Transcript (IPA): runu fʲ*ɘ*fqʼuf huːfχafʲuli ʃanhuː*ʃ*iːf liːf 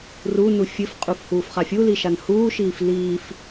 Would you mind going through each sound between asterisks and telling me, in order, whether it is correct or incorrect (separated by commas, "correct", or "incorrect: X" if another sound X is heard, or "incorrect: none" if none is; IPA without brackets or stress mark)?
correct, correct